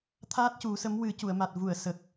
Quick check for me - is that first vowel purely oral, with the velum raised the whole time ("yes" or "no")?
yes